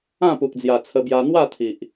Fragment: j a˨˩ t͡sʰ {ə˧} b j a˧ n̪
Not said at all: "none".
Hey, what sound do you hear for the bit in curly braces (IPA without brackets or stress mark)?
ə˧